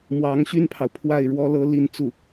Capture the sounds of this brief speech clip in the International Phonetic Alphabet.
m w ɑ˧˥ ŋ ɕ y˥ n pʰ ɑ˨ ʊ̯ pʰ w a˥˩ ɪ̯ ɻ w ɔ˥ l ɤ˥ l i˥˧ n t͡s u˥˩

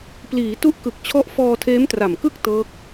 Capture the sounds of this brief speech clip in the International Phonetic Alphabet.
p l iː˩˦ t u˦˥ ʔ k ɯ˨˩ k̚ t͡ɕʰ ɔ˦˥ ʔ f ɔː˧ tʰ eː˦˥ m t r a˨˩ m k ɯ˥˩ k̚ t ɤː˦˥ k̚

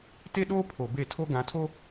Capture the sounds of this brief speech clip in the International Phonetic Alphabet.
t e˦ ɗ oː˦ pʰ o˨ b e˦˨ tʰ o˦ ɡ ã˨˦ tʰ o˦

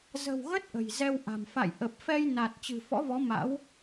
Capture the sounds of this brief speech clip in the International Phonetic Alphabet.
z ə̤˨˩ w ɣ ə˦˥ t̚ ʔ ə̤˨˩ j z ɛ˧ w ʔ a̤˨˩ m f a̰˧˨ j ʔ ə˨˩ p̚ f ɛ˧ j n a˨˩ t̚ t͡ɕ ɨ̤˨˩ f ɔ̰˧˥ v ɔ˨˦ m a̰˧˥ w

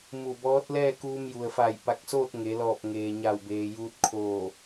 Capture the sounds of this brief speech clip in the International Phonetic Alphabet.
m u˧˩ b ɔː˧˥ t̚ l ɛː˥˨ k uː˧ m j u˩ ə̯ f a˧˩ j p a˧˩ k̚ s oː˥˨ t̚ ŋ e˩˧ l ɔː˧˩ p̚ ŋ eː˩ ɲ a˧˩ w b eː˩ j uː˧ t̚ kʰ oː˧˩

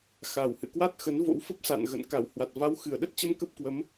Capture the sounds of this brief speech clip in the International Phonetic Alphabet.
x a˨˩ w h ɨ̰˧˨ k w a˦˥ t̚ x ə˨˦ n v o̰˧˥ w f ə˦˥ p̚ s a̰˧˨ n ɣ ə̰˧˨ n k a˧˩ w h w a˨˩ t̚ v a˨˦ w x ɨ˨˩ ə̯ ɗ ə˦˥ t̚ t͡ɕ ə˧ m k ə˦˥ p̚ k w ə˨˦ m

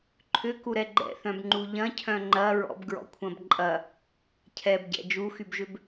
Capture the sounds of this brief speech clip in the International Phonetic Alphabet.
ǃʰ ʏ k u ɾ ɛ ɡ͡ǃ ɛ̰ θ œ̃ b ŋ͡ǃ u ʎ ɐ̃ cʰ œ̃ ŋ͡ǃ ɐ ɹ ɔ̰ b ɡ ɹ ɔ̰ kʷʰ ɐ̃ b ǃʼ ɐ | cʰ ɛ b ɟ ɛ̰ d͡ʒ u x y b ʒ ʏ b

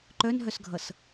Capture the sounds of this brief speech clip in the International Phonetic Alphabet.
ǃ œ n ɦ œ s ɡʱ ʌ s

